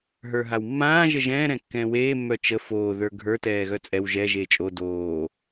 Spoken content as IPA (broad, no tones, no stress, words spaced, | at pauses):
ɦə˞ɦawmːãː ʒəʒɛ̃ː ɾɛ̃kːɛ̃ːweː mːœt͡ʃə foː ðə˞ɡʱə˞ tɛːɣœt͡sʼɛw ʒɛ ʒeːt͡ʃʼo doː